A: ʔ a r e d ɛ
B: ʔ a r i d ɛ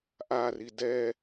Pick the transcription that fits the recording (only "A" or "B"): B